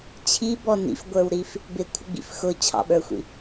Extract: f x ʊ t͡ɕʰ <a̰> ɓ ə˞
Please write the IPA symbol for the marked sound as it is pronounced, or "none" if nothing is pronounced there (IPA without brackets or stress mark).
ɑ̰